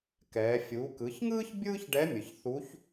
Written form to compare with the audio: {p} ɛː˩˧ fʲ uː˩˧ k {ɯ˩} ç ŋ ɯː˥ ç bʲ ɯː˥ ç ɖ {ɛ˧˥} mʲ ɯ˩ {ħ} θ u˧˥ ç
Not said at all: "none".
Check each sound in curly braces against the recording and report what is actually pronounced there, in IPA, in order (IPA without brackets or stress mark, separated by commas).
k, ɯ˩˧, ɛ˧˥, ç